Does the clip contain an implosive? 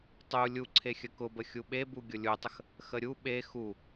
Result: yes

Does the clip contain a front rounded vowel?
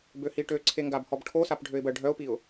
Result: yes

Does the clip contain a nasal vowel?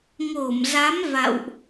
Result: no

